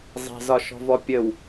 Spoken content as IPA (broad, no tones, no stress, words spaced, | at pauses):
zˤɛ̤zɒʃɔ̤vɔ pʲəw